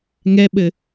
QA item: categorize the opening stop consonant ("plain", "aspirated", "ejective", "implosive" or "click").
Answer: implosive